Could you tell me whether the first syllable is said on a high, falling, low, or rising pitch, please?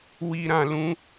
low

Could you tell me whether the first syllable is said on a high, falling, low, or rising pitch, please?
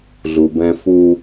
low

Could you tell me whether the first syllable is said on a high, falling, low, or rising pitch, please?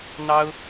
high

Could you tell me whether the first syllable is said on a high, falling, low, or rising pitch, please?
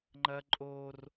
high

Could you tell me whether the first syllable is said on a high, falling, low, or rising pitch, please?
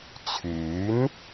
rising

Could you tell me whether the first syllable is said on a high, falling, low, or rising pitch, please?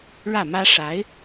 falling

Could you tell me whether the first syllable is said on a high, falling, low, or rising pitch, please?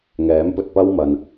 rising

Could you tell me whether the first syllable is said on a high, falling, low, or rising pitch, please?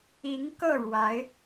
rising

